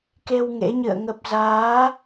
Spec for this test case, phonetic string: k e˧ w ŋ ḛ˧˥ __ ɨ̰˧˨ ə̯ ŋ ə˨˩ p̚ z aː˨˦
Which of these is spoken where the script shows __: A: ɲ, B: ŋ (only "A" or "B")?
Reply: A